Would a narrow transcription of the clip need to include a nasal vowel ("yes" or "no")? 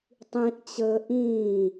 yes